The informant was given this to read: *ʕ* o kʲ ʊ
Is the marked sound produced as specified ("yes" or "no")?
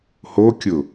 no